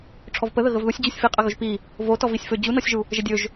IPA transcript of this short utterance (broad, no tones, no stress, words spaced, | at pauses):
ʈ͡ʂʰɔvpəðə ɣəvðusʲd͡ʑusʲ fiqʼə ɣɵʒpi | votɔ visʲfɵ d͡ʑunɔsʲʒu | ʒədʲɵʒ